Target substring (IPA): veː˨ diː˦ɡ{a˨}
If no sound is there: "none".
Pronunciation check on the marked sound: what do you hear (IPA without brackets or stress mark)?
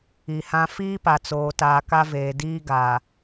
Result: a˨